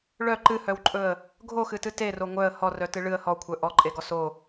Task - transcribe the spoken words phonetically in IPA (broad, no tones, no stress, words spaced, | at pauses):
ɭœ ǃɨhœwǃʼɵə̯ | ɡʱoxɨtɨ tero ŋʷœə̯ hɔrœtɨ ɭɨə̯ hɔkʷʰœ ʔɔǃʼeɡɔ so